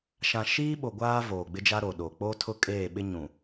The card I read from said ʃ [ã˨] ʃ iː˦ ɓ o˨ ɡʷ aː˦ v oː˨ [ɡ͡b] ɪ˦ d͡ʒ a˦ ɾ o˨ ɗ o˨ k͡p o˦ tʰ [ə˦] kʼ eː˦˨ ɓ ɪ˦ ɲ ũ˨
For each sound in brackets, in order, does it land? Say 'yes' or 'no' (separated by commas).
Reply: yes, yes, no